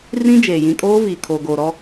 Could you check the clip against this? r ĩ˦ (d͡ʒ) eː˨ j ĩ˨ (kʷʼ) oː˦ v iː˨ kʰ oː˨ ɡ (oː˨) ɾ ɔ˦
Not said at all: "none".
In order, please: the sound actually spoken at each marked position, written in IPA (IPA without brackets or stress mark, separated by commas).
d͡ʒ, kʼ, oː˨